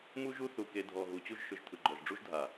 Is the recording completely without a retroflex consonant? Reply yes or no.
no